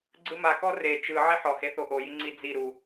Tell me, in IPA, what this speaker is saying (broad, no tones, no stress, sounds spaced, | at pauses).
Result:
ɡ͡ǀ ɯ m a k ɔ r e t͡ʃ ɯ ʕ i ħ ɔ h e θ o ʔ o j i ŋ͡ǀ i d͡z i ɾ u